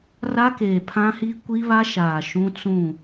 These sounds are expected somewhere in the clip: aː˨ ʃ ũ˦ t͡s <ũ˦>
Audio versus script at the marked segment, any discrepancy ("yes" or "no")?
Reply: yes